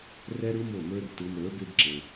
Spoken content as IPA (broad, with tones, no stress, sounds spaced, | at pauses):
r ɛ˦ ɾ ɯ˦ m o˦˨ m ə˞˦ r t ɯ˧ m ə˞˨˦ b e˦ b ǁ e˧